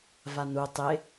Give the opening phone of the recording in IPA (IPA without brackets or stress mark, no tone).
v